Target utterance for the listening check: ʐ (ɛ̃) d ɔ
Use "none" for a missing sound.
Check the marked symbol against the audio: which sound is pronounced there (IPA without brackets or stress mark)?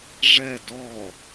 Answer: ɛ